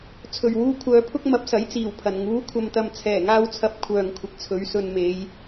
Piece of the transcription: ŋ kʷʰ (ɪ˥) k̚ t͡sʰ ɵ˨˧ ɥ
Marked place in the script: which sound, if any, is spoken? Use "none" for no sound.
ɪ˨˥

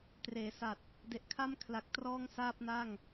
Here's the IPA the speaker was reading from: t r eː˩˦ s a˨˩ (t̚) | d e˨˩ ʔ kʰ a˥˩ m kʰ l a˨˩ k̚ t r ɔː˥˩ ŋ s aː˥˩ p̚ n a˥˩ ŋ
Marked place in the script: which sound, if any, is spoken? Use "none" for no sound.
t̚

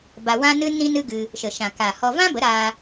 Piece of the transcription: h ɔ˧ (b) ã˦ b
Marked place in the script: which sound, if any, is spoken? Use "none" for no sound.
v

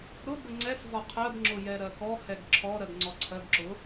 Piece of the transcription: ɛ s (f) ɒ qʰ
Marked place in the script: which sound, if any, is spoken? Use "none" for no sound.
v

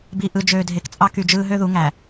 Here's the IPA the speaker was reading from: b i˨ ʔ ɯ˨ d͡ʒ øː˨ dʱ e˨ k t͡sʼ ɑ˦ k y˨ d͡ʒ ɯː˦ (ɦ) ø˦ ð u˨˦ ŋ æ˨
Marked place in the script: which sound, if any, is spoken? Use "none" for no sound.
ɦ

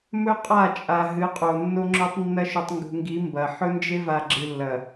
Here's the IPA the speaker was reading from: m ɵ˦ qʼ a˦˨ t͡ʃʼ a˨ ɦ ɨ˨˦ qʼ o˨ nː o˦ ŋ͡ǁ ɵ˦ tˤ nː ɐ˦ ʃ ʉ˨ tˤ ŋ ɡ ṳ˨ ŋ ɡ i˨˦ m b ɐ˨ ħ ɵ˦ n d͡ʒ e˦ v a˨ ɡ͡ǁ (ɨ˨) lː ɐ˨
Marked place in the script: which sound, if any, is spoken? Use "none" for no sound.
ɨ˨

